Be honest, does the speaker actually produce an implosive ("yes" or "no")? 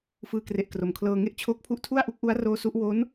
no